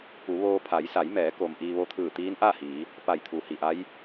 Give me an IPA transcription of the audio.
p u˩˧ ʋ oː˧ pʰ a˩˧ j s a˩˧ j m ɛː˩˧ k o˩ m ʔ iː˧ ʋ o˧ t̪ʰ ɯː˧˩ t̪ iː˧˥ n ʔ a˥˨ h iː˩˧ | p a˧˩ j t̪ʰ u˩˧ h i˩ ʔ a˧˥ j

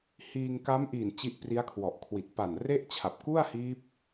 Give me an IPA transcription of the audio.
h iː˧ ŋ k a˦˥ m ʔ iː˨˩ n t͡ɕ i˦˥ ʔ p r i˦˥ a̯ kʰ w ɔ˨˩ ʔ kʰ w i˨˩ t̚ p a˨˩ n r e˥˩ ʔ t͡ɕʰ a˨˩ p̚ k u˥˩ a̯ h iː˦˥ p̚

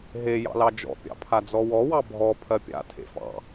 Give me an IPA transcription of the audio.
ɦ e j ɑ̰ l ɑ d͡ʒ ɔ̰ pʲ ɑ̰ pʰ a d͡z ɔ w ɔ w ɑ bʱ ɔ pʰ ɜ pʲ a̰ tʰ ḛ f ɑ̰

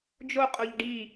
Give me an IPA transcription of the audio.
d͡ʒ o qʼ o ʎ ɖ i

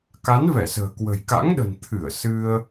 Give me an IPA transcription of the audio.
k a˨˦ n v ɛ˧˩ s ə̤ː˨˩ k w ə̤˨˩ j k a̰˧˥ ŋ ɗ ə̤˨˩ n t̪ʰ ɨ˧˩ ə̯ s ɨ˧ ə̯

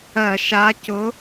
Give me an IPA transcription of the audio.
ɜ˧˩˧ ʃ a˨˥ c ʊ˨˥

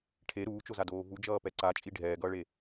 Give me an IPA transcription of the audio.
ʈʰ e ɾ uː t͡ʃ o z a d oː v u d͡ʒ ʌː p ɛ ǀ a t͡ʃʼ i ɖʱ ɛː ɡ ʌː ɭ e

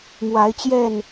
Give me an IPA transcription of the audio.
m w a˨˦ ɪ̯ t͡ɕ j ɛ˥˨ n

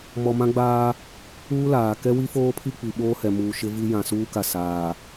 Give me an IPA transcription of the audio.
m ɔ˨ m ã˦ ɡ͡b aː˦ | uː˦ l aː˨ k ɛ˦ w i˦ f oː˦ pʰ i˦ k͡p i˨ ɓ oː˦ h ɛ˨ m uː˨ ʃ ɪ˦ v i˦ j ã˨ s uː˦ k a˨ s aː˨

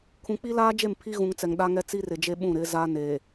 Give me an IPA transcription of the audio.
kʰ ũ˨ k͡p i˦ l aː˦ d͡ʒ e˦˨ m pʰ i˦ ɣ ũ˨ ŋ t͡s ɛ˨ ŋ ɗ a˦ ŋ ɛ˦ t͡s i˦ r ɪ˨ d͡ʒ e˦ ɓ ũ˦˨ ɾ ɪ˨˦ z a˦ n e˨

